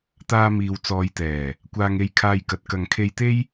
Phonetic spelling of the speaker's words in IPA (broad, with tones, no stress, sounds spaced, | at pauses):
t̪ aː˧ m iː˨ w t͡s ɔː˨˧ j t̪ ɛː˨˩ | kʷ aː˧ ŋ e˧ j kʰ aː˧ j k ɐ˨ t̚ k ɐ˨ ŋ kʰ e˧ j t̪ e˥ j